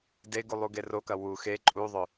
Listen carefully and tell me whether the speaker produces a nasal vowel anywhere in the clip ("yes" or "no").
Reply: no